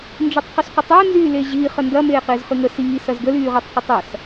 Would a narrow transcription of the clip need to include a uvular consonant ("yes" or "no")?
yes